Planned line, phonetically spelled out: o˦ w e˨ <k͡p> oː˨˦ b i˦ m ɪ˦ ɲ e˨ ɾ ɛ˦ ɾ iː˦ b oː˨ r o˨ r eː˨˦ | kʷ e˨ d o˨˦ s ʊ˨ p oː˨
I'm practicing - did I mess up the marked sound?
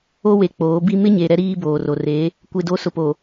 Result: no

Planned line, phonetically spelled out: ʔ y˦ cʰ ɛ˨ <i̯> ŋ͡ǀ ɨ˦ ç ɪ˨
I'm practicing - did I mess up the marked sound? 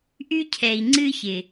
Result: no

